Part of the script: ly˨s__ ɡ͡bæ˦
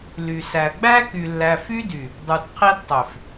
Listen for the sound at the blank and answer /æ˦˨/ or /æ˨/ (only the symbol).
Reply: æ˨